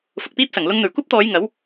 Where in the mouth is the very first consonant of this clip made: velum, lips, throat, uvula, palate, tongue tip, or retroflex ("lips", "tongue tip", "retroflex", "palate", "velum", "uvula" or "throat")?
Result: lips